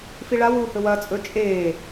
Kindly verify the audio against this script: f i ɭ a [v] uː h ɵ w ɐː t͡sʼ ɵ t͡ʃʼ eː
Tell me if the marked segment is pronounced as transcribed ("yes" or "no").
no